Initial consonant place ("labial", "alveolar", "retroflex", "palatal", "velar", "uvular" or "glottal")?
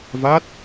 labial